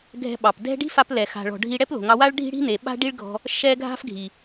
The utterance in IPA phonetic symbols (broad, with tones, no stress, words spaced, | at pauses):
ɡʱɛ̤˧ɓɑ˨pdɛ̤˦ ɖi̤˦fa˧plɛ˨ xa̤˨ɭɔ̤˨ ɖʱi˧ ɽɛ˦plo̤˨ ŋɑ˧wa˦ɭ ɖʱi̤˦ɽi̤˦ n̪e˨ɓa̤˦ɖi˦ɭɡʱɔ̤˧ | ʃɛ˦ ɡʱa̤˦fɡʱi˨